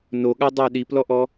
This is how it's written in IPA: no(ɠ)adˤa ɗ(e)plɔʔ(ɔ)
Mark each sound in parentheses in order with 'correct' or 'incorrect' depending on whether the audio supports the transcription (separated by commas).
correct, incorrect, correct